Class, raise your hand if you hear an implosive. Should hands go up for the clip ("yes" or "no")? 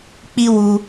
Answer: no